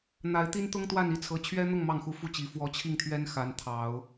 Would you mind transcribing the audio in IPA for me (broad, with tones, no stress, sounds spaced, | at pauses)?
n̪ a˧˥ ɪ̯ t̪ i˥ n t̪ ʊ˥ ŋ t̪ w a˥˧ n i˥˩ t͡sʰ ɤ˧˥ t͡ɕʰ ɥ ɛ˥ n̪ ʊ˥˧ ŋ m ɑ˥˩ ŋ x u˧˥ f u˥˩ t͡ɕ i˧˥ f w ɔ˧˥ t͡ɕʰ i˥˩ ŋ t̪ʰ ɥ ɛ˥ n x a˧˥ n t̪ʰ ɑ˨˩˦ ʊ̯